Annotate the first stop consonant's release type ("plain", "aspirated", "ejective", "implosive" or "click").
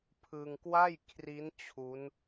aspirated